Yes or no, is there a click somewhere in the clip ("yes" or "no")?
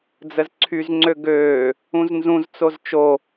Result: yes